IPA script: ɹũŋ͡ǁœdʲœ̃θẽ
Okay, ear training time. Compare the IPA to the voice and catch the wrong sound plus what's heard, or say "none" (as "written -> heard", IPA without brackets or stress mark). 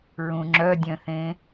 none